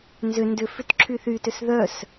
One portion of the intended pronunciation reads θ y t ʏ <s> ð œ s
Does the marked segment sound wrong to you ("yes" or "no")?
no